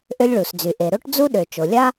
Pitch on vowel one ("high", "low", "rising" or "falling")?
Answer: high